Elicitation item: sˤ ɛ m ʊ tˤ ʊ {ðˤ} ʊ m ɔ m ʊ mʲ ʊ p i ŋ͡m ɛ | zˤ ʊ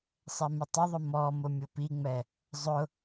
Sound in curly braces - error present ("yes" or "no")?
no